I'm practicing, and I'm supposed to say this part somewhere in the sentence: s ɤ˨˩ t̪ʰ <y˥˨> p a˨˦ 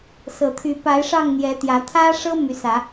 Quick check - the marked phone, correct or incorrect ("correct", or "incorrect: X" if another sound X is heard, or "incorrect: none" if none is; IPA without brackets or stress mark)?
incorrect: y˨˦